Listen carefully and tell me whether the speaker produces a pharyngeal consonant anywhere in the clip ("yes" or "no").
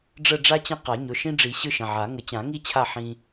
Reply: yes